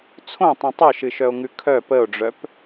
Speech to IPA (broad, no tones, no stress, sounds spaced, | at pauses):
t͡sʰ õ tˤ ĩ tˤ œ ʃ ɨ ʃ œ o̯ ŋ ʉ kʰ œ p ə o̯ ɖ͡ʐ œ p